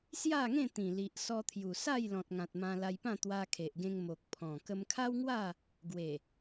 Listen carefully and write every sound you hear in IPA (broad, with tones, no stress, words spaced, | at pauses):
sja˥˧ŋẽ˥˧t̪ĩ˨˩li˨ʔ sɔ˧t̪ʰju˨˩sa˥˧j lɔ̃˨t̚ ŋã˨t̚mã˧la˧jpã˥˧ t̪wa˧kʰe˨ʔɡẽ˧ŋ mo˨k̚pʰɔ̃˨˩ kə˧mkʰa˦wŋwa˥˧ | ɡwe˨˩